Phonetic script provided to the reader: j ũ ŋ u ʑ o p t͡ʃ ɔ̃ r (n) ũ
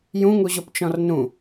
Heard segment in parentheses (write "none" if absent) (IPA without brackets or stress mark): n